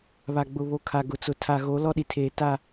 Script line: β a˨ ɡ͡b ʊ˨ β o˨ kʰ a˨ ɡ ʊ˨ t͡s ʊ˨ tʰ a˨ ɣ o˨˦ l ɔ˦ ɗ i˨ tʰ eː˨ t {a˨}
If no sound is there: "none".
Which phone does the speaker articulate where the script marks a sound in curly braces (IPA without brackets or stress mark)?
a˦˨